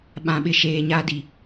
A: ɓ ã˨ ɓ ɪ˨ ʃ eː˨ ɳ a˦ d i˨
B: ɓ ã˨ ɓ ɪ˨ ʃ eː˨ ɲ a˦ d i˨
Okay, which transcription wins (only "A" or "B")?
B